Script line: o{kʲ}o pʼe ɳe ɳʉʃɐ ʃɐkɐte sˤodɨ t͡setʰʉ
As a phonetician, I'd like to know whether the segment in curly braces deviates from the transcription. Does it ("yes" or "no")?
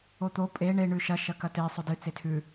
yes